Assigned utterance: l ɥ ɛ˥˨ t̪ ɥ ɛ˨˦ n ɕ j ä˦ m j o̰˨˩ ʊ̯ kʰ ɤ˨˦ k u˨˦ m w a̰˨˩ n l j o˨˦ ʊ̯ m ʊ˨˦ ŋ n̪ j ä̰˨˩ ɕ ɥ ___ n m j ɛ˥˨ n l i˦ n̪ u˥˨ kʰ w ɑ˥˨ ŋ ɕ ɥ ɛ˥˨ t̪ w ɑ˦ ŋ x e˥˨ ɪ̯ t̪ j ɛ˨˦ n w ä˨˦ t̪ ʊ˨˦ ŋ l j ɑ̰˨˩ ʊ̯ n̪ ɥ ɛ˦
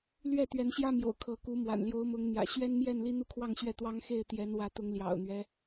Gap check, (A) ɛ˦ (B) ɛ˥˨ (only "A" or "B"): A